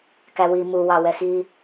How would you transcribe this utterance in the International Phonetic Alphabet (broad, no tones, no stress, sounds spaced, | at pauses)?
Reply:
k æ w i m u w ɑ w ɛ x i